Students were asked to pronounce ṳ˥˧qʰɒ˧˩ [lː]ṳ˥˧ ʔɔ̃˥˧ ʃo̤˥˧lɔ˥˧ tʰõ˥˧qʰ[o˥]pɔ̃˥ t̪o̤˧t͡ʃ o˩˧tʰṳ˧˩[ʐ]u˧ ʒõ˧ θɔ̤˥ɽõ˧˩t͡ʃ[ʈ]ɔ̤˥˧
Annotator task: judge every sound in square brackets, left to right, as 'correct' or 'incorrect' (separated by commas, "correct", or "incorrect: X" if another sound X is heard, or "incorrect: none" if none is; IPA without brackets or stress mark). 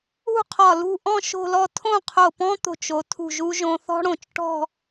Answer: incorrect: l, incorrect: o˧˩, incorrect: ʒ, correct